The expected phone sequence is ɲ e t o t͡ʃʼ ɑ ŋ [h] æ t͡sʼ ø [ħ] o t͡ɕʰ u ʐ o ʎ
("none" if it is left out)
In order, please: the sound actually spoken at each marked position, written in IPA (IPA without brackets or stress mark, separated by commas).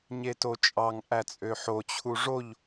ʔ, ħ